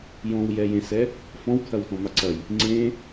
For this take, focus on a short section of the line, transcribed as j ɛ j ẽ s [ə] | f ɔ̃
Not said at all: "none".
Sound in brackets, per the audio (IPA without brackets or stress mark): ɛ